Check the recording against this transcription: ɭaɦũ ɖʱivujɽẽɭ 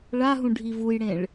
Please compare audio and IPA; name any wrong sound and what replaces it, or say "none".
none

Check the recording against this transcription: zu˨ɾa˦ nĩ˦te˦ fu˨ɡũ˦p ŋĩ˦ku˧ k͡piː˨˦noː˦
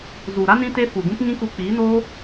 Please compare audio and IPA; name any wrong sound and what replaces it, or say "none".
none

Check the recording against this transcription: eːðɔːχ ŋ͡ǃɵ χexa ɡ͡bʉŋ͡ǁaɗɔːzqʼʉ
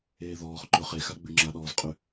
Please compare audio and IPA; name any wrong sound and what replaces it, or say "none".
ŋ͡ǃ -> ǃ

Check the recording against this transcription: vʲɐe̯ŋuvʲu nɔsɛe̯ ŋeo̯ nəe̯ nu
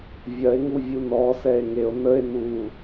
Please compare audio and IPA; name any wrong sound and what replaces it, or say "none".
none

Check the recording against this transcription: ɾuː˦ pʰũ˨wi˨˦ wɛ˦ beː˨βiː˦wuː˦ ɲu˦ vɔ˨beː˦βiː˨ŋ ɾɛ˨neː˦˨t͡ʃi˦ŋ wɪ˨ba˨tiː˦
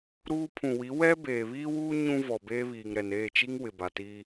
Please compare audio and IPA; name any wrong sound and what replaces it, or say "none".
u˦ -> ũ˦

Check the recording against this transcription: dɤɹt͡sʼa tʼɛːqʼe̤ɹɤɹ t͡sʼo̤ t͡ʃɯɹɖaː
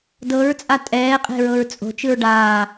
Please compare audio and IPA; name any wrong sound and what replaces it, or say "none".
none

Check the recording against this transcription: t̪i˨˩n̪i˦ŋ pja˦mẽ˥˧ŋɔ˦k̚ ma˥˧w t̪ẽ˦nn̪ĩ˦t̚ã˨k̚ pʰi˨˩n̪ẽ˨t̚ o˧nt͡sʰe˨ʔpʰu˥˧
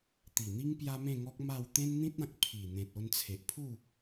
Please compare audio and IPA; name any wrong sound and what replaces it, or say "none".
none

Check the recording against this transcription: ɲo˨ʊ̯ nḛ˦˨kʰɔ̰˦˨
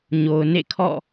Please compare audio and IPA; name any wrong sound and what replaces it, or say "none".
none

